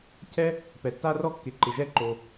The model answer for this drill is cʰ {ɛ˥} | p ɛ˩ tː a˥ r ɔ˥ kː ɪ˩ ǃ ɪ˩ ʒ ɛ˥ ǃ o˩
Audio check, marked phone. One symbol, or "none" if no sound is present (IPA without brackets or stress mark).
ɛ˥